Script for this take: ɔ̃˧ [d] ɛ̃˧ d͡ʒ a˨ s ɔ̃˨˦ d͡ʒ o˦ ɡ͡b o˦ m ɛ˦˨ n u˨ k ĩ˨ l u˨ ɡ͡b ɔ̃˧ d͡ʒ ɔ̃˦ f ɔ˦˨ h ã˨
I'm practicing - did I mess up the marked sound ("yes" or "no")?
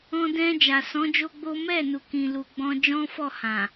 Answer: no